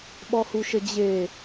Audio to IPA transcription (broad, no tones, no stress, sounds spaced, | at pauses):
ɓ ɔ h u ʃ ə d͡ʑ e